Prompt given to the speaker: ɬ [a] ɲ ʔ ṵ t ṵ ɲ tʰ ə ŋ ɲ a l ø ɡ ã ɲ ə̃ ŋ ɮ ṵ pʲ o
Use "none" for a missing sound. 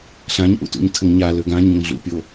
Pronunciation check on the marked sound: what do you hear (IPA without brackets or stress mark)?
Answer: ã